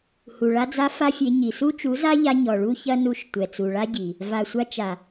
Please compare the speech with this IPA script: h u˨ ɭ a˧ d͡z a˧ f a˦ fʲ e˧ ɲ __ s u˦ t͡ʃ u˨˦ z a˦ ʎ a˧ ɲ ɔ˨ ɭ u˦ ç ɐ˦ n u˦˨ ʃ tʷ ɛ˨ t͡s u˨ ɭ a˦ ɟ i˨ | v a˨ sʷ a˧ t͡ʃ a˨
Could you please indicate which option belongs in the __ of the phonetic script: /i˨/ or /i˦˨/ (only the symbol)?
i˨